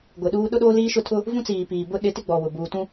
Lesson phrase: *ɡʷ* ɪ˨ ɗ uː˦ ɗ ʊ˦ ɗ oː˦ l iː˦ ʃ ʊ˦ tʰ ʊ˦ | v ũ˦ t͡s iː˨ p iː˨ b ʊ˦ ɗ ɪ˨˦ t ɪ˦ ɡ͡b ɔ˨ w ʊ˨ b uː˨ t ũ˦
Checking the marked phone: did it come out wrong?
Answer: no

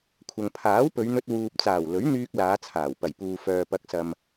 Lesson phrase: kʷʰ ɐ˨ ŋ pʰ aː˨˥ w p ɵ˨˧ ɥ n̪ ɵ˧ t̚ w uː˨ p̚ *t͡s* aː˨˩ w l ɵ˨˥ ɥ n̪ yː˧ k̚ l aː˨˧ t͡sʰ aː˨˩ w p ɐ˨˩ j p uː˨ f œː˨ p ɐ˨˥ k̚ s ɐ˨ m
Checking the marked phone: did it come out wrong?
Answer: no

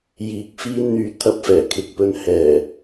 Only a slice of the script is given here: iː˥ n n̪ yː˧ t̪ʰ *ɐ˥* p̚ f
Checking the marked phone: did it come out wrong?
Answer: yes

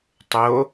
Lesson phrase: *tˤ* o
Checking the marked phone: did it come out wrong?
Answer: no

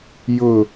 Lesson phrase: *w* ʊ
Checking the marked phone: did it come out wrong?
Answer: yes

